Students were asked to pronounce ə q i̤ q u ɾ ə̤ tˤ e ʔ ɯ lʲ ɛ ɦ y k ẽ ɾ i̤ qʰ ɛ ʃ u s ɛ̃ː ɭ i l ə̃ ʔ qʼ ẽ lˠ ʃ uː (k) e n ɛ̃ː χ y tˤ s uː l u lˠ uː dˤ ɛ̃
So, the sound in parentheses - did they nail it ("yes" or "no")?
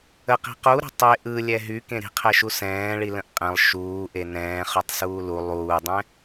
no